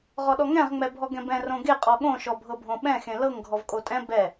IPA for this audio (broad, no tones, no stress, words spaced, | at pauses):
ʁɔɗɔŋɛ̃ʁ ŋ͡mɛbʱɔɡɛ̃bɛ̃ rõɡe qʼɔɠõ ʃɔbʱɤbʱõɓɛ̃ xẽlɤŋ ɡʱɔvkʼotʼɛ̃ bɛ